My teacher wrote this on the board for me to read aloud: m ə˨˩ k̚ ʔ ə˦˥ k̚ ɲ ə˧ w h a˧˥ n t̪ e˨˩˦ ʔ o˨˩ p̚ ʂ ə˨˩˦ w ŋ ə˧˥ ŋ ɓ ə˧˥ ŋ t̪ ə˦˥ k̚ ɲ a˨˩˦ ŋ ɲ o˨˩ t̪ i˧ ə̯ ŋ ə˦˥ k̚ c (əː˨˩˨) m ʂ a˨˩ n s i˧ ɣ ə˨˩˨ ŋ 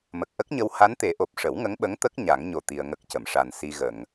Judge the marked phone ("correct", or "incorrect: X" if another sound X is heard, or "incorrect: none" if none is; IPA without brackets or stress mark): incorrect: ə˨˩˨